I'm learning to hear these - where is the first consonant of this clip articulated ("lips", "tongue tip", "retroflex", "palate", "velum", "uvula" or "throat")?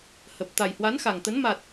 throat